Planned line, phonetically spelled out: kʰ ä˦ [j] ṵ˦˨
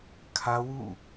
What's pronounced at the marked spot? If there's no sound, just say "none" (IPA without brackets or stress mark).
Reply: w